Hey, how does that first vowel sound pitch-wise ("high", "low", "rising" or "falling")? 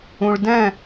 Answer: low